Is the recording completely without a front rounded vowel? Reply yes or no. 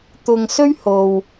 yes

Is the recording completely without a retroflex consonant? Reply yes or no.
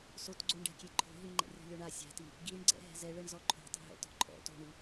no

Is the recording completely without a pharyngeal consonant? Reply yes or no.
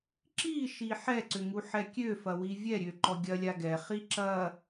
no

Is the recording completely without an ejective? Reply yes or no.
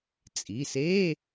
no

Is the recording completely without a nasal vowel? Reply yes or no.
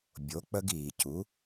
yes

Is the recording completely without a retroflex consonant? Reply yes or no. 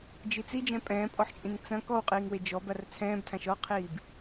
yes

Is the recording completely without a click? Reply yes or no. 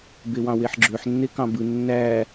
no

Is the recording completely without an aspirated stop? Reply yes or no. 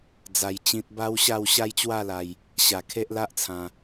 no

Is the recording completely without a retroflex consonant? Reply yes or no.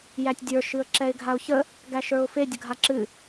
yes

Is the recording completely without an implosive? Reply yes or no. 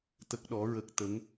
no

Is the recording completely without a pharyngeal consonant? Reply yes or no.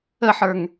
no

